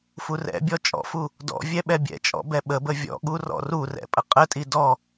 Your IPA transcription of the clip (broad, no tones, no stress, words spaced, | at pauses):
furɛ̰bʲɔ t͡ʃʼɔ̰fu | dɔ̰ vʲɛɓɛbʲɛ̰t͡ʃʼɔ̰ bɛɓəbə vʲɔ̰ɠu rɔ̰rurɛ̰ pʼəqʼətʼi dɔ